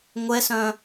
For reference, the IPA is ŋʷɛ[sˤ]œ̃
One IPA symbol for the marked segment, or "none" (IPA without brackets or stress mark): s